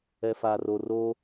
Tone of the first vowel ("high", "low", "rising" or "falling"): low